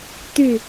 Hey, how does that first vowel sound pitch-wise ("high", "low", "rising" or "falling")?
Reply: falling